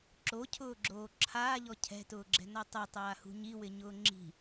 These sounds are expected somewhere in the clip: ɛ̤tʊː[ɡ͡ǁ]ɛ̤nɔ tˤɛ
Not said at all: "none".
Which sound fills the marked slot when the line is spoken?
ɡ͡ǁ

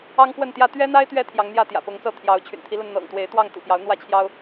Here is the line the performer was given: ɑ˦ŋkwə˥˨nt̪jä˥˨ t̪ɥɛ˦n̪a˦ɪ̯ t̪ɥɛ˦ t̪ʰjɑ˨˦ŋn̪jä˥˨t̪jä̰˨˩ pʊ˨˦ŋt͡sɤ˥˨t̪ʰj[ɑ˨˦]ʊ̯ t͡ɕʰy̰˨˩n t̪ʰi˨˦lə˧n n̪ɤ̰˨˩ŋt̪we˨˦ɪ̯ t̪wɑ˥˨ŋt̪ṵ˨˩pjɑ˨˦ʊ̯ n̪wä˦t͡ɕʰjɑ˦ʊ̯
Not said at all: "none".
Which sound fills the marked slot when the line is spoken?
ɑ˨˦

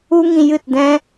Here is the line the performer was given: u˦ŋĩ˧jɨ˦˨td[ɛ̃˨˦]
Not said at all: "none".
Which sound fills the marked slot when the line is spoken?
ɛ̃˦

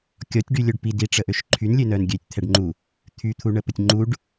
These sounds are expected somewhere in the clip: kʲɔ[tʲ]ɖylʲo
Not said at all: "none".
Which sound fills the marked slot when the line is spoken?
tʲ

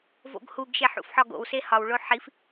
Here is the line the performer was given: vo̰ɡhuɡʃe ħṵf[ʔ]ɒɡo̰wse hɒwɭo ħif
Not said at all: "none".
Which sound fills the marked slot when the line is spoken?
ħ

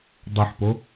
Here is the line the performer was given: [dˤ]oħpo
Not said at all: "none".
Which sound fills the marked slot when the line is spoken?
dˤ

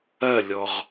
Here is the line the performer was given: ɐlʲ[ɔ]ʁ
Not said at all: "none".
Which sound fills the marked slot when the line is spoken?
ɔ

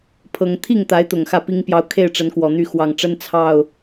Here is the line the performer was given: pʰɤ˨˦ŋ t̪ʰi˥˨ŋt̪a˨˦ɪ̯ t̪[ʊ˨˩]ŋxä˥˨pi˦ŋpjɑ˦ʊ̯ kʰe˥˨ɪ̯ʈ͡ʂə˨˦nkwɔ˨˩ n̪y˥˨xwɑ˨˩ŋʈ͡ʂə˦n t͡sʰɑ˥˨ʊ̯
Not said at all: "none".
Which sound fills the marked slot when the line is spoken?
ʊ˨˩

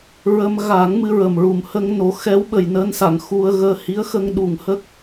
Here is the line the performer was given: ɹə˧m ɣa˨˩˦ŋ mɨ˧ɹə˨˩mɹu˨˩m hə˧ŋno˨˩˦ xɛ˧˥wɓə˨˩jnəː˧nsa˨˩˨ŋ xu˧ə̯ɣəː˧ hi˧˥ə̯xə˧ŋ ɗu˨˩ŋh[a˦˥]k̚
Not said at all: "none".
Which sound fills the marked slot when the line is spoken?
ə˦˥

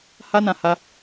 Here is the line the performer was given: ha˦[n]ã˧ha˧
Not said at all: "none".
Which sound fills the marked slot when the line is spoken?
n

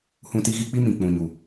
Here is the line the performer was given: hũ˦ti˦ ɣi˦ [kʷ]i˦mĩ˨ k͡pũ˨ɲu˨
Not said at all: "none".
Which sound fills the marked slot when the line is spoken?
k͡p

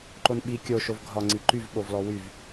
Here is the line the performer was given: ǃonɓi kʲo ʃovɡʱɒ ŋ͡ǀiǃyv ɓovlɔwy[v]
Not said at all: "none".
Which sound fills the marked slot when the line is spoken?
v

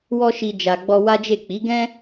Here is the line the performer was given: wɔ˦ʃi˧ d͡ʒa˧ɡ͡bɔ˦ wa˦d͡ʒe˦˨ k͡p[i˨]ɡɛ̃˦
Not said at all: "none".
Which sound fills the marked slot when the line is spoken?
i˨˦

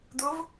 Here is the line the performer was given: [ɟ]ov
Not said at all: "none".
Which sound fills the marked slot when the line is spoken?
d̪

